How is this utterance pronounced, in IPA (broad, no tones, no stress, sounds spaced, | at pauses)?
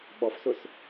ɓ ɔ f s ʊ s